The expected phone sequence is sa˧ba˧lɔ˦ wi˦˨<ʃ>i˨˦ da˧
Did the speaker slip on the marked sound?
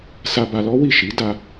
no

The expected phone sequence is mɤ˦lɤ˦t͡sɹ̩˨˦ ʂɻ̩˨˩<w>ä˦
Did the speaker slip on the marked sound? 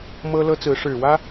no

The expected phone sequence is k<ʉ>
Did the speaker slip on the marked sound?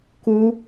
yes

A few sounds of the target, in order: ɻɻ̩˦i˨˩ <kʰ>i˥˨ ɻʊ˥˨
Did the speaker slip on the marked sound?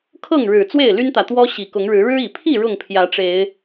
yes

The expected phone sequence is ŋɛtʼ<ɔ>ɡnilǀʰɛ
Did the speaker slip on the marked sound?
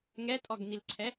no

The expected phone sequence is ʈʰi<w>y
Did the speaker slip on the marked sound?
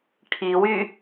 no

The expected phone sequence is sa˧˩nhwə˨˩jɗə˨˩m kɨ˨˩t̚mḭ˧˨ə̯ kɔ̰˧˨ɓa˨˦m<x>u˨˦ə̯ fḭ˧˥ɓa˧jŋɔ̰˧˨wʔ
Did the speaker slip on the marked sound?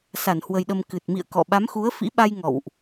no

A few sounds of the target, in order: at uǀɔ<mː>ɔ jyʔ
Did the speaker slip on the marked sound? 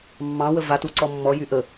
no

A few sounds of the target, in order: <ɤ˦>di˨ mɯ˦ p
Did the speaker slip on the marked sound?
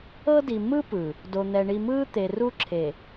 no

